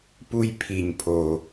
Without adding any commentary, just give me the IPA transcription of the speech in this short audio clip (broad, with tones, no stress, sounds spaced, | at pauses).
p u˨ j pʰ i˩ ɲ pʰ o˩